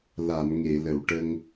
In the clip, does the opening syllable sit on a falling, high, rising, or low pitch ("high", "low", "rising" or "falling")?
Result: low